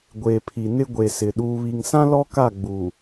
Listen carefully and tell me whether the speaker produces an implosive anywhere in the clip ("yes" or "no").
yes